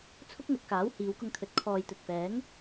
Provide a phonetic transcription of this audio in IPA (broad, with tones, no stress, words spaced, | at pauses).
t͡sʰʊ˥k̚ŋɐ˧t̚ kaː˨˥whiː˨˧wkʊ˧ŋt̪ʰɵ˨˥t̚ kʰɔː˨jt̪ɵ˨t̚fɛː˨˥ŋ